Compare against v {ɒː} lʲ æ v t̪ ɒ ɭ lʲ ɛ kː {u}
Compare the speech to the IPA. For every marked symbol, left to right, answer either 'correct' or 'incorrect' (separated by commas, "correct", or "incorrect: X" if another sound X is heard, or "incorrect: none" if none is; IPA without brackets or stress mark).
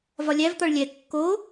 incorrect: ɒ, incorrect: o